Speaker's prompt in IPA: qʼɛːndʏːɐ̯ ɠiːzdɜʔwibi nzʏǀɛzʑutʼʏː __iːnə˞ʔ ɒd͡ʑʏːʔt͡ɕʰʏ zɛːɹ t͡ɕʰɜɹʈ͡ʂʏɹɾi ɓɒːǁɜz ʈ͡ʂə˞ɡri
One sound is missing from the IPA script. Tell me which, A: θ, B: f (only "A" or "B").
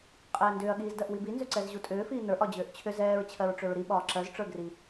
B